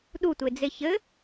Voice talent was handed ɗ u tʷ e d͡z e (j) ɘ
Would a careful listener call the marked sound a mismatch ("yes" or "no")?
yes